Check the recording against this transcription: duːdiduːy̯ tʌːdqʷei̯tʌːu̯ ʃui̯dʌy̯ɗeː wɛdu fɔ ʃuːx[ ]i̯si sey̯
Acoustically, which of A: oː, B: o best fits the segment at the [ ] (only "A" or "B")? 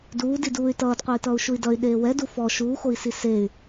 B